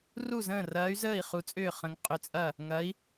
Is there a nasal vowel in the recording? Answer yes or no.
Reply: yes